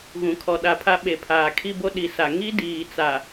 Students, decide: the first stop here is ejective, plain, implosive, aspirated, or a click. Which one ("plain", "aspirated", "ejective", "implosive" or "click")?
aspirated